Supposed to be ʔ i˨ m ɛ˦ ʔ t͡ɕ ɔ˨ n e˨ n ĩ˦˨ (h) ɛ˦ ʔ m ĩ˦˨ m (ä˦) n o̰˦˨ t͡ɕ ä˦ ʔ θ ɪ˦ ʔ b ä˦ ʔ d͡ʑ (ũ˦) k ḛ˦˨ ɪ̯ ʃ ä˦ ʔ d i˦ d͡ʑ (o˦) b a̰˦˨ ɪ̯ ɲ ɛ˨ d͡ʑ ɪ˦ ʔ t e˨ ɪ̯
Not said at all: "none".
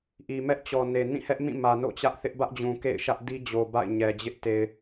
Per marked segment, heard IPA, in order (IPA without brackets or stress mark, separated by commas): h, ä˨, ũ˨, o˨